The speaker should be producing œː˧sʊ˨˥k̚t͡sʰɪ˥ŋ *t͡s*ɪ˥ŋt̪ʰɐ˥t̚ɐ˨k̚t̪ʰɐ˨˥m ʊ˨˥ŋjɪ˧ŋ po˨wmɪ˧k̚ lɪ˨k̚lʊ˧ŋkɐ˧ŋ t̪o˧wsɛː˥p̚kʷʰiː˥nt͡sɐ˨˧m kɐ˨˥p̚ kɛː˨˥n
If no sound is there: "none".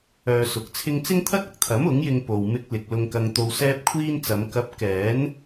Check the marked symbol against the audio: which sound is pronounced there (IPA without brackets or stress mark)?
t͡s